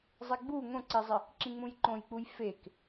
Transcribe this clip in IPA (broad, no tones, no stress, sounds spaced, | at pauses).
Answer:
zˤ e ɡ͡b u ŋ õ ǀ i zˤ ɪ | ǁ ĩ ŋ͡m ũ j ǃ õ j k͡p u j f e k